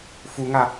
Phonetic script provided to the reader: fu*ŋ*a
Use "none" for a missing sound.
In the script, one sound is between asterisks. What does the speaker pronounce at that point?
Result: ŋ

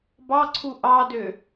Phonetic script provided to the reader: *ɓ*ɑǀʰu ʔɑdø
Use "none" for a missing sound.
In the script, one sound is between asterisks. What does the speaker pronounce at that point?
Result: b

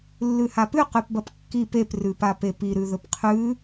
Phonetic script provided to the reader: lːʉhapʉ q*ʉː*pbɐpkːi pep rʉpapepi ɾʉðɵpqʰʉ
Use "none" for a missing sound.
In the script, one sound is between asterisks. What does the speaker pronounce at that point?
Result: ʉ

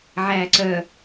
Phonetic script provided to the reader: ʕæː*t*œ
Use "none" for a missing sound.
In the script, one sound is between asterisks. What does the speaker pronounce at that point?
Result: ǀ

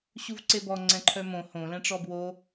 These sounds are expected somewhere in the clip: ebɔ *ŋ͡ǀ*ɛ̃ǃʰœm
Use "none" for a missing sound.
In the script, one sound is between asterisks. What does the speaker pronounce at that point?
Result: ŋ͡ǀ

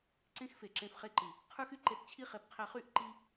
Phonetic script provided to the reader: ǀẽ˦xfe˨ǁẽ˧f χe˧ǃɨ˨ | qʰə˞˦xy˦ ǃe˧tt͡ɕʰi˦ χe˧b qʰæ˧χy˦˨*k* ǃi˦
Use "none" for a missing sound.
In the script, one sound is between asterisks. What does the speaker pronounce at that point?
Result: ʔ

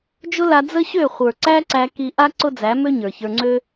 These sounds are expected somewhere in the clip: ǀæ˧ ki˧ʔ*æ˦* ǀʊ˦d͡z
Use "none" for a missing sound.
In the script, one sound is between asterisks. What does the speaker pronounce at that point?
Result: a˦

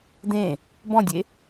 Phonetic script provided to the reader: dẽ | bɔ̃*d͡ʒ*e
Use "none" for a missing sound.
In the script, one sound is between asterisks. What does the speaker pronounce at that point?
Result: dʲ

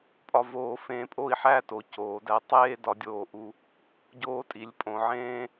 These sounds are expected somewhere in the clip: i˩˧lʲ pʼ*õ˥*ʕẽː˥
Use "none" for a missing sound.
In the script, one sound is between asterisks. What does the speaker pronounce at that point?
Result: õ˩˧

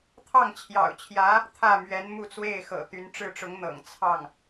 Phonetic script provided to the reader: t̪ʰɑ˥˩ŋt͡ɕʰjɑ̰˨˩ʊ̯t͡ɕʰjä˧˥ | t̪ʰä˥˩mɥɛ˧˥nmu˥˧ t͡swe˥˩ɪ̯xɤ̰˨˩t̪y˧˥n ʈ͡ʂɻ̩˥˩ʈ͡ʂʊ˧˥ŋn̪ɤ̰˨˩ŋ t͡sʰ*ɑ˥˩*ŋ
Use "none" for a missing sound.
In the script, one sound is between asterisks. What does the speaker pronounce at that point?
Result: ɑ˥˩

